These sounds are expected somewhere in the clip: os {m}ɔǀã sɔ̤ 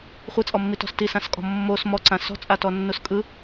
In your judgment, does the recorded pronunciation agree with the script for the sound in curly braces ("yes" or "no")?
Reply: yes